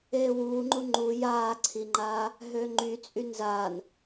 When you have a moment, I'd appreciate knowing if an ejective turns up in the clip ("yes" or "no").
yes